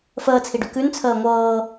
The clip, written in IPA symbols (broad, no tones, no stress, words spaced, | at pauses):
fəːt͡sʰiɖʉ kʉn t͡sʰəːŋʷɤː